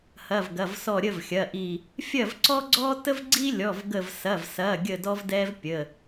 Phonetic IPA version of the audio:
hɐ˩˧˩vɡɐ˩˧˩vsɔ˧˩ ɾʲə˥˨vxʲɐ˩˧˩ʔi˧˩ | fʲɐ˥˨vǀɔ˥ɡ͡ǀɔ˥ tə˥vɡ͡ǀi˥lʲɔ˩˧˩vɡə˧˩v sɐ˩˧˩vsɐ˩˧˩ɡʲə˧˩ dɔ˥vdɛ˥vpʲə˩˧˩

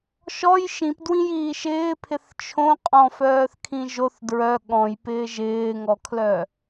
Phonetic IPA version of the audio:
ʃɔj ʃĩpdwĩjiː ʃɪːpʰɪθ t͡ʃʰõ qʼɔ̃fœːθkʰĩ ʒoθ dɹœ ɠɔ̃jpɪː ʒɪːŋɔkʰlœ

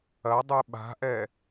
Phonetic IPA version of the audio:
ɐdˤɨ ɓa̤ʔɛ

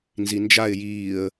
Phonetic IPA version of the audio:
nzind͡ʒaɪ̯ jiːə̯

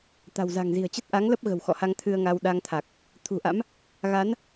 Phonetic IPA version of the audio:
t̪a̤˨˩wza̤˨˩ŋ zi̤˨˩ə̯t͡ɕə˦˥t̚ʔa˨˦ŋlə˦˥p̚ ɣə̤˨˩wxɔ̰˧˨ha˧ŋ t̪ʰɨ˧ə̯ŋa˧w ɗa˧ŋt̪ʰa˨˩k̚ | t̪ʰṳ˨˩ʔa̰˧˥m | ɣa˨˦n

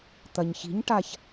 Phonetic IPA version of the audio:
t̪ɐɲçi̤ɲʈaç

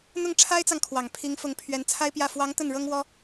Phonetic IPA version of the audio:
n̪ʊ˥˩ŋʈ͡ʂʰa˥ɪ̯t͡sɑ˨ŋ kʰwɑ˨˩ŋpʰi˧˥ŋfʊ˧˥ŋ pʰɥɛ˧˥nt͡sʰa˥ɪ̯pjä˥˩ fwɑ˧˥ŋ t̪ə˥˩nɻɤ˥ŋwɔ˥

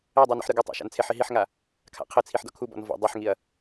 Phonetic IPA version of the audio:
edˤu nɔ̰ħɾɯɡɘtˤa̰ ʃa̰nt͡sʰeħi ɦiħŋa | kʰa̰qʰɘt͡sʰiħ dɔ̰kʰubɔ̰n vɔ̰ dˤeħŋiɐ̯

